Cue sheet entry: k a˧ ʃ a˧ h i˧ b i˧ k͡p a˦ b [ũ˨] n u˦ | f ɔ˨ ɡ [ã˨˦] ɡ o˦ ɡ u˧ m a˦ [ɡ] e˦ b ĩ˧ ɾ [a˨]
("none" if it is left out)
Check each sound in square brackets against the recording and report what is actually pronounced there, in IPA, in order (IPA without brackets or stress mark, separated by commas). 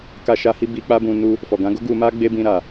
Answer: ũ˧, ã˨˦, ɡ͡b, a˨